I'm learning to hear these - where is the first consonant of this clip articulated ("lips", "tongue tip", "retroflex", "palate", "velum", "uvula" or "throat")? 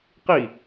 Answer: uvula